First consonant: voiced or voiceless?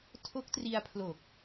voiceless